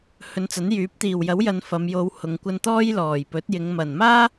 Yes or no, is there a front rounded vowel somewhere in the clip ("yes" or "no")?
yes